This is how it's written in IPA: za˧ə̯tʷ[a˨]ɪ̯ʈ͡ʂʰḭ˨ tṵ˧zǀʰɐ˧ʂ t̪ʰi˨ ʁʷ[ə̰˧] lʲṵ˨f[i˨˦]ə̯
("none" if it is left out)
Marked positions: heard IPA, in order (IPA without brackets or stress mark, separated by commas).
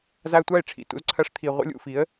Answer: a˦˨, ə̰˧, i˨˦